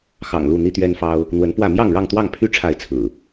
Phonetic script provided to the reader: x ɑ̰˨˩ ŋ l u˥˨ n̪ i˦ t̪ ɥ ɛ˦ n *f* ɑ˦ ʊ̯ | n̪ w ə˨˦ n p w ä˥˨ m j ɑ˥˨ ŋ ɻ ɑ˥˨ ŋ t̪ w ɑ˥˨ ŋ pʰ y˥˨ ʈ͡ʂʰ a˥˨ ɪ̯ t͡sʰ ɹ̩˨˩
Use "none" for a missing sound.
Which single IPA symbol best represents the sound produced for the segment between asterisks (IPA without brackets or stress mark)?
f